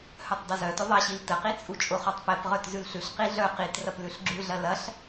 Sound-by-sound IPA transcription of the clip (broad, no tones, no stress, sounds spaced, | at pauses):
h œ tˤ dˤ ʊ z œ t ʊ ðˤ ɐ ɕ i l t ə q i t͡sʼ u t͡ʃʼ ʊ χ ɔ tˤ p ɛ p ʁ œ t z ʉ l ɬ ʉ ɬ q i ɮ œ q i t r ɐ p l ʉ ɬ ɡ͡ǁ ʉ ɮ ɐ l ɐ ɬ